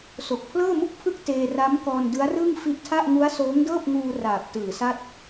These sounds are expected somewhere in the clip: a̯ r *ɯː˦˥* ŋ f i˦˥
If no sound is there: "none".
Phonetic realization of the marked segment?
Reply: ɯː˥˩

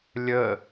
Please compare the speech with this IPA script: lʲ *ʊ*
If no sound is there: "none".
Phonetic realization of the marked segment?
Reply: ə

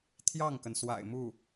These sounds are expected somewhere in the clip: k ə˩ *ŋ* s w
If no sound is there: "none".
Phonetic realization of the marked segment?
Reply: n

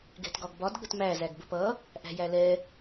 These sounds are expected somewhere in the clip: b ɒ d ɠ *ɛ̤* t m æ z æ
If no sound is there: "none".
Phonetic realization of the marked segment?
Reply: ə̤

